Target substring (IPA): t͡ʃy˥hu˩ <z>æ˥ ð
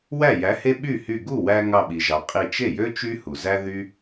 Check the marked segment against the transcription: correct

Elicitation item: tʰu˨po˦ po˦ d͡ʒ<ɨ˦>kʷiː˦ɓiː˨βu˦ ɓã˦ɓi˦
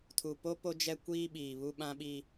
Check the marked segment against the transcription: incorrect: ɛ˦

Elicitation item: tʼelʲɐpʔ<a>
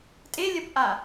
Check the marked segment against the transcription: correct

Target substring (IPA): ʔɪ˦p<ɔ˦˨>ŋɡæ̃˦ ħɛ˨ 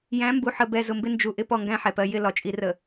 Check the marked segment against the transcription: correct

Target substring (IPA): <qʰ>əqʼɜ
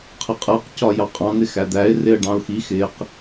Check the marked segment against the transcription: correct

